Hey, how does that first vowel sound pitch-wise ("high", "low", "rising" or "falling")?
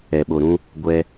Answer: low